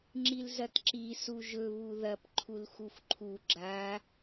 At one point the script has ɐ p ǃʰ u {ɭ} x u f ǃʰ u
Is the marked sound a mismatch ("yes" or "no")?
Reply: yes